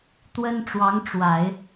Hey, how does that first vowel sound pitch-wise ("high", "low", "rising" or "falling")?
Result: high